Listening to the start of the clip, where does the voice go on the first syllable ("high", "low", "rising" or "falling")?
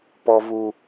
high